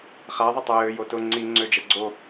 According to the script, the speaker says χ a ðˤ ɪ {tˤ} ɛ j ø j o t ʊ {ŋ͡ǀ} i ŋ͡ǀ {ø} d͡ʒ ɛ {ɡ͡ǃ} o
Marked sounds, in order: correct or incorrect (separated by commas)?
correct, correct, correct, incorrect